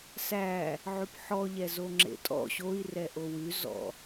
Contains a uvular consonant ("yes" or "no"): no